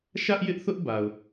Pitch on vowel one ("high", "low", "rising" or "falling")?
high